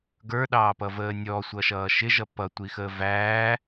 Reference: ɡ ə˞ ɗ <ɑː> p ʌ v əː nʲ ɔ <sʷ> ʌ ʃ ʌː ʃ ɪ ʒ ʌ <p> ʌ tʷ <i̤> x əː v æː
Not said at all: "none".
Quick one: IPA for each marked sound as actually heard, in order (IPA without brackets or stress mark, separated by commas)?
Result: ɑː, sʷ, p, i